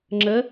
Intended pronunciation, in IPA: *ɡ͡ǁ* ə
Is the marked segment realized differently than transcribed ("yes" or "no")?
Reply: yes